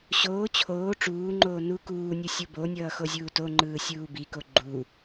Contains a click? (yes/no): yes